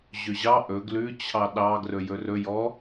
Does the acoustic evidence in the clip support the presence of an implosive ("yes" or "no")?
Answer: yes